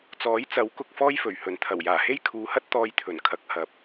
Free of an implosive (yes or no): yes